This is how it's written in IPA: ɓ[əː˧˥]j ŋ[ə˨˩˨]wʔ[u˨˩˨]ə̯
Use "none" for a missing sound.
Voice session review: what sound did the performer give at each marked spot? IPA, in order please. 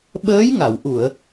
əː˧˥, a˨˩˨, u˨˩˨

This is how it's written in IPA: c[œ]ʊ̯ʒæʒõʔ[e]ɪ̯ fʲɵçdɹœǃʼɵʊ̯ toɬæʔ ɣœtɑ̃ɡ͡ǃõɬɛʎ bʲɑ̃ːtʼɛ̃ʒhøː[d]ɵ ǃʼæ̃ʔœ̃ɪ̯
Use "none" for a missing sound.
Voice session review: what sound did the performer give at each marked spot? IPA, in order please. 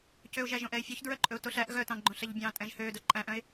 ø, ɛ, d

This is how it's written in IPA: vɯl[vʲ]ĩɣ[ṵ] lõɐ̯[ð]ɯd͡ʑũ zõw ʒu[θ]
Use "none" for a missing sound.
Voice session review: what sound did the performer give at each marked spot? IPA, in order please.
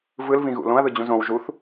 v, ṵ, ð, θ

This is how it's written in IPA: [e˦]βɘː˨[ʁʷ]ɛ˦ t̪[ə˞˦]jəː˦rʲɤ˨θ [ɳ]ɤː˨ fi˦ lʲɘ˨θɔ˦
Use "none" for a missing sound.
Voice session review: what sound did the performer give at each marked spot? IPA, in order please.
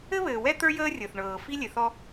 ɘ˦, w, ə˞˦, ɳ

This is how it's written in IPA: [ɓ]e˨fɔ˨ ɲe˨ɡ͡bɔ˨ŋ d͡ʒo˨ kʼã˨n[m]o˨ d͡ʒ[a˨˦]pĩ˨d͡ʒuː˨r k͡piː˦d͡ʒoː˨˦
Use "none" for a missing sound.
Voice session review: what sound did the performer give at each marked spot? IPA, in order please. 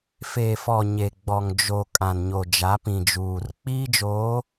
f, ɲ, a˨˦

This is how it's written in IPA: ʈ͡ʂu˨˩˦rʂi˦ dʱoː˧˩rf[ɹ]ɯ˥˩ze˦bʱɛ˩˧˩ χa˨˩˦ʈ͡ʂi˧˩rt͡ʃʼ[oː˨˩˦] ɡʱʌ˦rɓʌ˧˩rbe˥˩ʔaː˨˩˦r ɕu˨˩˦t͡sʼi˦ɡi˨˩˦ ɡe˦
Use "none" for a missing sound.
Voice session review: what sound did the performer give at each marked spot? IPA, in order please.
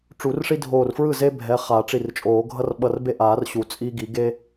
ɹ, oː˨˩˦

